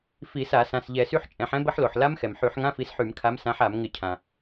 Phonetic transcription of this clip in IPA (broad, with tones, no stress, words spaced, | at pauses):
fi˧˩˧sa˧˩˧ sã˩˧˩sʎɛ˧˩˧sy˦˥ħ t͡ʃʼɛ̃˧˩˧ħɛ̃˦˥ bə˦˥ħlo˩ħ la˦˥mxɛ˩mħy˧˩˧ħ ŋã˧˥˧fi˨˦sħy˧˩˧mkʰa˨˦m sã˨˦ħ a˧˩˧mŋɪ˧˩˧cʰã˩